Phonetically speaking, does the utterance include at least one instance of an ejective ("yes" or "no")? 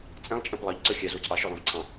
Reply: yes